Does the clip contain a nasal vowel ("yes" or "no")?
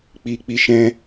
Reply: yes